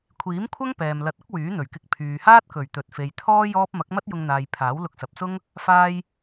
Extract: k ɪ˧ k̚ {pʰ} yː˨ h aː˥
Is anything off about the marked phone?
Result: no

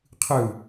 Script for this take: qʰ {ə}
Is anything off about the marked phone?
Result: yes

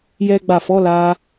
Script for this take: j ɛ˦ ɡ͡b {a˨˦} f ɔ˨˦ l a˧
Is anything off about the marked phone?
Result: yes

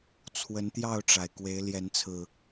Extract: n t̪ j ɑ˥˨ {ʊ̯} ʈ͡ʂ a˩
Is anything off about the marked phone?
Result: no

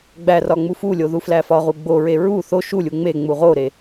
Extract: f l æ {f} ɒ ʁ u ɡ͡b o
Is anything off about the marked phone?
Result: no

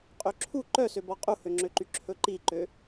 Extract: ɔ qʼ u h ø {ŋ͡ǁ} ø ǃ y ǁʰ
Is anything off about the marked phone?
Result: no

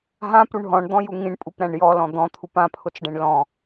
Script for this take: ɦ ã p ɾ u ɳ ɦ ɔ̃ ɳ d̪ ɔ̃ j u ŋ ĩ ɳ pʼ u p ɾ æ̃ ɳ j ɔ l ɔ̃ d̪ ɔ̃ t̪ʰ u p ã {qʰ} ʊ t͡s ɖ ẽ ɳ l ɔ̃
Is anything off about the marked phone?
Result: yes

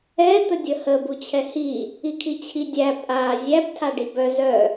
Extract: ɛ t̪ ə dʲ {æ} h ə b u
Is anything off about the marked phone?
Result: yes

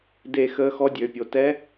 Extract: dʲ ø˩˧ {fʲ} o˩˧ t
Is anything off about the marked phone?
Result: yes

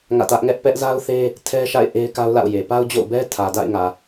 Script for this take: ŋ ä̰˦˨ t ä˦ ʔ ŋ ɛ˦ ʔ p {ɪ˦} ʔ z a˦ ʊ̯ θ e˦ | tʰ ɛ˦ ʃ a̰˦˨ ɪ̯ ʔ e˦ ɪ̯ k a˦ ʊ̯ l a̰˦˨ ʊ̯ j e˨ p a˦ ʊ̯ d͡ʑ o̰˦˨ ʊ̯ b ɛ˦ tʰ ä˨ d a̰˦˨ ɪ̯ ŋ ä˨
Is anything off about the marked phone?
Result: yes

